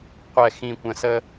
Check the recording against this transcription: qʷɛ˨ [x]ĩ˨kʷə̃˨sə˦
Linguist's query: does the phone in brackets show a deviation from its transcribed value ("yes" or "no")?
no